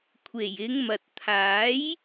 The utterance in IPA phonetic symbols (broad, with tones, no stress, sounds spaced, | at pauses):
kʷʰ e˨˩ j ɪ˨˧ ŋ m ɐ˨ t̚ t̪ʰ aː˨˥ j